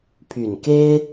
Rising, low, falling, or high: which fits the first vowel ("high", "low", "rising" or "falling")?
low